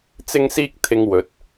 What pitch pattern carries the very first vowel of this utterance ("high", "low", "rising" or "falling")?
high